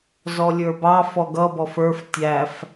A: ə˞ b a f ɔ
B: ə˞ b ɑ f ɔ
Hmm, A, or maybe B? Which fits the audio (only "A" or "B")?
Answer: B